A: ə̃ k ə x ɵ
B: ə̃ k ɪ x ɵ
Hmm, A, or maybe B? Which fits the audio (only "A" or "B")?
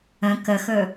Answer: A